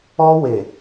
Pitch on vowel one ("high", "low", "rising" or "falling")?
high